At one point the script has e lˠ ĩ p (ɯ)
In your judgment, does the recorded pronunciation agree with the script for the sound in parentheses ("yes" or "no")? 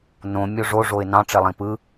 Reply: yes